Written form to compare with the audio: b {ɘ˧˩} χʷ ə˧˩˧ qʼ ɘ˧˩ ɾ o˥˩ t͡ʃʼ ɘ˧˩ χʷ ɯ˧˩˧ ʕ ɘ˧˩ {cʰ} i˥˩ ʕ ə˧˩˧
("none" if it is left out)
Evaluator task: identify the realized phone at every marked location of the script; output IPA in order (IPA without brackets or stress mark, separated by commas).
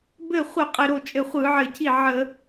ɘ˧˩, cʰ